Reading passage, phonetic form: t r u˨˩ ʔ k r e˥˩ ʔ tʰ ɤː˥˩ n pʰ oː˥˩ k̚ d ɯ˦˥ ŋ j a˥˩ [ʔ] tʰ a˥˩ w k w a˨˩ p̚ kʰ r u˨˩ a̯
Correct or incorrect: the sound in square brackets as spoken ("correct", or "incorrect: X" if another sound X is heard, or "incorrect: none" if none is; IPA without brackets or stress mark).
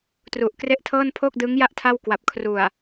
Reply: correct